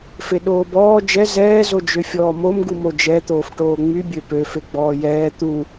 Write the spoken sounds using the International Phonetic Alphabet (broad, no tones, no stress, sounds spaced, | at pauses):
f e ɗ oː b ɔː d͡ʒ ɛ z ɛː z o d͡ʒ ø fʲ ɔː m o m ɡ u m o d͡ʒ ɛ t̪ oː f ʈ oː ŋ͡m y bʲ ø p ø f e ɡ͡b ɔː j ɛː t̪ u